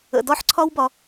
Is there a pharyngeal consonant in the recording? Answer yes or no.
yes